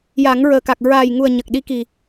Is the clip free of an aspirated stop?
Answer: yes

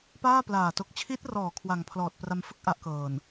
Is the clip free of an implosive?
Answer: yes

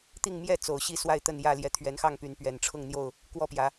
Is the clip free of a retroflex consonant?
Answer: no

